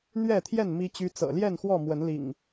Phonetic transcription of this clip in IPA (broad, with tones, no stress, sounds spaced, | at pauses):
n̪ ɥ ɛ˥˨ t̪ʰ j ɛ˥˨ n m i˦ t͡ɕ y˦ t͡s ɤ̰˨˩ l j ɛ˥˨ n x w ɔ˥˨ m w ə˨˦ n l ḭ˨˩ ŋ